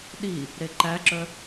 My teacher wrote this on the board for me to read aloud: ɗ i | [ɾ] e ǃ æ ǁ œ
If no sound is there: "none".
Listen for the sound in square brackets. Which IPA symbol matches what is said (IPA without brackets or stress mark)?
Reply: ɾ